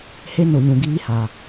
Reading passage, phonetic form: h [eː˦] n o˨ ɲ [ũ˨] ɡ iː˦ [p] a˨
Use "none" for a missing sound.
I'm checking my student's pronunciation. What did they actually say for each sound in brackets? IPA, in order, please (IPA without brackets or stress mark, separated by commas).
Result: e˦, ũ˨, h